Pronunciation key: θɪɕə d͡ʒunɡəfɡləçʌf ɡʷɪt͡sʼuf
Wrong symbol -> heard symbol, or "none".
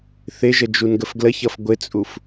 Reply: ɕ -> ʒ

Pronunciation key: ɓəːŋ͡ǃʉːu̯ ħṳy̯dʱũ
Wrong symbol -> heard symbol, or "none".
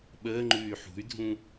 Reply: u̯ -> y̯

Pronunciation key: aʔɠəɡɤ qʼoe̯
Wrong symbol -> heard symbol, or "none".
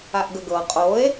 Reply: ɠ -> ɡ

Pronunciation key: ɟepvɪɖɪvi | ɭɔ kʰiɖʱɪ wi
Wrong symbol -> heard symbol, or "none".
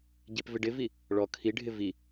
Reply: w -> v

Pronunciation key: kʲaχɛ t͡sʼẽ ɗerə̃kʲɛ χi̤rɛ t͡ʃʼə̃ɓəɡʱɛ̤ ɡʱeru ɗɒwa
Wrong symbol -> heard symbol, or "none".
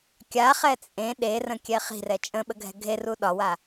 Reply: none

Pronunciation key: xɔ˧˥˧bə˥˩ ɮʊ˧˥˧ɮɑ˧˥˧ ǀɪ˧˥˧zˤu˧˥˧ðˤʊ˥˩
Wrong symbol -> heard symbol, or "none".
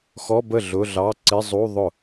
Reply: none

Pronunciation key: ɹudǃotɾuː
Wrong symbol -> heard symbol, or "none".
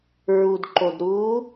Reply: t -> d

